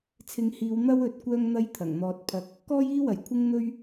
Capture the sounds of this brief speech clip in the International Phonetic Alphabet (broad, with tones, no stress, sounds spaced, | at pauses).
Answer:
t͡sʰ ɪ˨˧ ŋ h iː˨˧ w n̪ ɐ˥ w ɵ˨˥ t̚ kʷ œː˥ ŋ n̪ ɐ˥ j t̪ʰ ɐ˨˩ ŋ n̪ ɔː˧ t̚ pʰ ɐ˧ k̚ | k ɔː˥ j iː˥ w ɐ˨˩ j kʷʰ ɪ˥ ŋ n̪ ɵ˥ ɥ